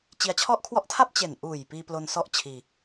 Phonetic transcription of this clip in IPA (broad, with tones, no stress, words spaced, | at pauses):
t͡ɕi˧a̯t͡ɕʰɔ˥˩ʔkʰwɔ˥˩ʔ tʰa˥˩p̚ t͡ɕe˨˩nʔuː˨˩j piː˧plo˧n sɔ˥˩ʔ t͡ɕʰiː˧